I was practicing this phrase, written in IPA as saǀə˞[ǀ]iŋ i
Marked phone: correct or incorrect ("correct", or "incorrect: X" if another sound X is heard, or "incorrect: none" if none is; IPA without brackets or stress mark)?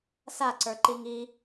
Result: incorrect: ǃ